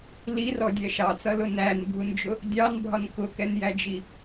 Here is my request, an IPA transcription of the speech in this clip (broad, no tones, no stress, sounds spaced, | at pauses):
l i r ɔ dʲ ɛ ʃ ɑ t͡s ʌ l ʊ n æ n bʱ u n d͡ʒ ʊ | dʲ ɑ n bʱ ɒ n k ʊ k ɛ n j æ d͡ʒ i